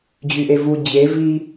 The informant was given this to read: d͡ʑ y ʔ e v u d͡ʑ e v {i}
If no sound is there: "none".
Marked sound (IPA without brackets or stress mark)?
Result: i